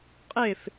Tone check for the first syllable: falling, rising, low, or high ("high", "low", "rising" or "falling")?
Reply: falling